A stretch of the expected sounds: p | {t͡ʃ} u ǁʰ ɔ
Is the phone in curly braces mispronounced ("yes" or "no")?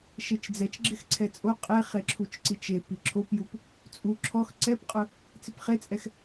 yes